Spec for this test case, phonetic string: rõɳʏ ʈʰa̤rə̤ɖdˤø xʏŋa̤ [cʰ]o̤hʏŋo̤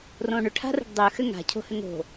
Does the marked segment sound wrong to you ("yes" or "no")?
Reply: no